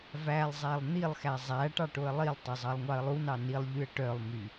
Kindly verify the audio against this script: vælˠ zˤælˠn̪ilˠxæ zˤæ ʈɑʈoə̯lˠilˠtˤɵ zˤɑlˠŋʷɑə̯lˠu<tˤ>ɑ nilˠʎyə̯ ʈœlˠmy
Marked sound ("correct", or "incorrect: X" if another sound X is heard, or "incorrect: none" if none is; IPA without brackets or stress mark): incorrect: n